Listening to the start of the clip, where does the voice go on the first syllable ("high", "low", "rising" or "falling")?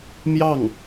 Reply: falling